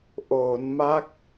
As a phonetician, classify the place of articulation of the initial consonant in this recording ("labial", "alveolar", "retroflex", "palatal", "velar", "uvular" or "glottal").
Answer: glottal